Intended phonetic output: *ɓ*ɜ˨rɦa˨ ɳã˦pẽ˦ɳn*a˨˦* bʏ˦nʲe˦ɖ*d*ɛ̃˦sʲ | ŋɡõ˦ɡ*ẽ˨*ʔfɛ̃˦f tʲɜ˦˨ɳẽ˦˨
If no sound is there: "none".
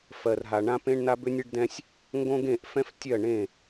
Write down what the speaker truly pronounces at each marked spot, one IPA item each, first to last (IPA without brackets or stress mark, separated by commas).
f, a˦, d, ẽ˦˨